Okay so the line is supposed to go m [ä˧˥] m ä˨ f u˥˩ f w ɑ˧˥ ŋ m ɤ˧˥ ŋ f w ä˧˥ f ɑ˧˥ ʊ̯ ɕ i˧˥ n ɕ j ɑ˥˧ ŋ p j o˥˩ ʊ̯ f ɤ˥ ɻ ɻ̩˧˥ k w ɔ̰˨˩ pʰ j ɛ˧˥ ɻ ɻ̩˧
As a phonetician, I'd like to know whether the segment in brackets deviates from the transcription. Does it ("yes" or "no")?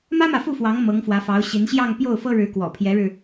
yes